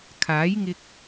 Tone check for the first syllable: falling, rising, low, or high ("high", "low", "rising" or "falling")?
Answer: rising